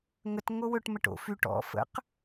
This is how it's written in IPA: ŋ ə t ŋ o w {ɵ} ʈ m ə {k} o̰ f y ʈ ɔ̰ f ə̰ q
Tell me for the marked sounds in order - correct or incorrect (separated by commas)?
correct, incorrect